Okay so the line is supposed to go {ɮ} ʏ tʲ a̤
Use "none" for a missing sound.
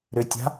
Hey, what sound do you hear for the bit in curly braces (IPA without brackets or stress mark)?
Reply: ɾ